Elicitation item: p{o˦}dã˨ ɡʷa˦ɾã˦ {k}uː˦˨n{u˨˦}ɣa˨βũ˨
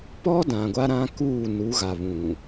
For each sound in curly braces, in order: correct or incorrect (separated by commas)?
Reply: incorrect, correct, correct